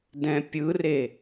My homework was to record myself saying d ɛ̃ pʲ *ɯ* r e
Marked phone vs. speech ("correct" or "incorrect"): correct